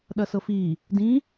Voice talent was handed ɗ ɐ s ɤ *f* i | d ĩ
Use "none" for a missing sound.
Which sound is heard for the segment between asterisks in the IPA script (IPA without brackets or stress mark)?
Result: f